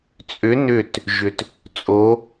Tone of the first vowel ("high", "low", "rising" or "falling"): rising